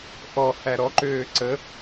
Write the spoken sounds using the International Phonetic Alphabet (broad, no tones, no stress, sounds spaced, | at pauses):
ʔ ɔ h æ ɾ ɔ ǃ øː ǀ ə